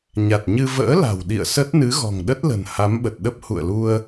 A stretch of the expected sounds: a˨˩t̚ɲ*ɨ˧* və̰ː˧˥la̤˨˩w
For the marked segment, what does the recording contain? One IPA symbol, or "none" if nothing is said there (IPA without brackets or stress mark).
ɨ˧